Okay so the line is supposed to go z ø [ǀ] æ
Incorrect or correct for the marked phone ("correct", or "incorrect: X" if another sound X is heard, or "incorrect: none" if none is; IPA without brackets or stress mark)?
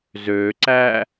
correct